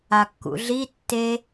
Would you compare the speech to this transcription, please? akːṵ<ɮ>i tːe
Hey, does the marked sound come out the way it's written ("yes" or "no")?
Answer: yes